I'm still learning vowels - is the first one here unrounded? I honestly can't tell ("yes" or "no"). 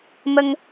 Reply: yes